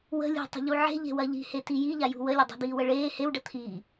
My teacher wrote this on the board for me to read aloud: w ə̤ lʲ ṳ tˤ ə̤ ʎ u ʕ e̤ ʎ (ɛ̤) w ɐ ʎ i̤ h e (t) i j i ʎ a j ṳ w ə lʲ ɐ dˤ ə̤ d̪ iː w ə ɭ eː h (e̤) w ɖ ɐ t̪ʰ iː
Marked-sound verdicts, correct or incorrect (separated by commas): incorrect, correct, incorrect